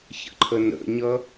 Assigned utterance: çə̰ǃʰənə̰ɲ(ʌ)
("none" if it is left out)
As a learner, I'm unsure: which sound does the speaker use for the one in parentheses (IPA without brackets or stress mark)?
ʌ